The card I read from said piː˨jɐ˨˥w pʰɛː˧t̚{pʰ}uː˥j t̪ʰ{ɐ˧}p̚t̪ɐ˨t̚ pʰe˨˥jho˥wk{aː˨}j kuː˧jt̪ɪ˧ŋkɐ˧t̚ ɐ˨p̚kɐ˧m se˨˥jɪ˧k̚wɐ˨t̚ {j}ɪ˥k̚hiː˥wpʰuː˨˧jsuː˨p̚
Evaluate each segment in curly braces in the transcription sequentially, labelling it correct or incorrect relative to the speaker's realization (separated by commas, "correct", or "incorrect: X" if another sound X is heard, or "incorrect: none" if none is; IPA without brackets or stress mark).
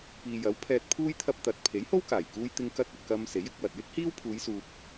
correct, correct, incorrect: aː˨˩, correct